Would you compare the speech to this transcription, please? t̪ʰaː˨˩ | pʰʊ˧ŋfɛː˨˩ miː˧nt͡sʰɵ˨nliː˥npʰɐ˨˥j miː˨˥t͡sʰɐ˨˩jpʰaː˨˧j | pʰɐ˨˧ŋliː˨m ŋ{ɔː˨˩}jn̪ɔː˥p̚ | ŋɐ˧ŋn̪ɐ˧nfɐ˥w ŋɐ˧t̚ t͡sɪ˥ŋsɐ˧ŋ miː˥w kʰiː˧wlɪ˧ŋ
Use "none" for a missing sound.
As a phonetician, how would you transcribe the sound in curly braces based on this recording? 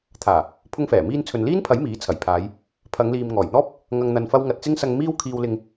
ɔː˨˩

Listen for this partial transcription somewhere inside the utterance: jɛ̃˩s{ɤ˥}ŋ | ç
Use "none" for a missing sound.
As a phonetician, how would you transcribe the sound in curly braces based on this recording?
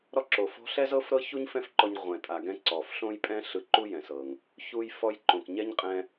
ɤ˩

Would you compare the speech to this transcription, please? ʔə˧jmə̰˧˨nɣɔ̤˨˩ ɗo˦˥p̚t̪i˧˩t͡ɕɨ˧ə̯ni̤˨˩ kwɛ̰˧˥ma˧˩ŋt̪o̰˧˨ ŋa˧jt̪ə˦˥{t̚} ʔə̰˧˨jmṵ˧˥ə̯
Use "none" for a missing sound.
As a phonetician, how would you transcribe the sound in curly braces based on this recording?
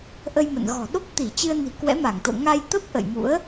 p̚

